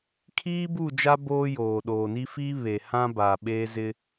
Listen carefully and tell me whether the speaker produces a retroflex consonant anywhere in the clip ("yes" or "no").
no